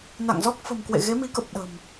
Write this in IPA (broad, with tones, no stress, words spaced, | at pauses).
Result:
na̰˧˨ŋzɔ˦˥k̚ fə̤˨˩mkwḛ˧˨ ɣe˨˦mi˨˦kə˨˩p̚ ɗə̤˨˩m